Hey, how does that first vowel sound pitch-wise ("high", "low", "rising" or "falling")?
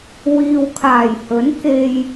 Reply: low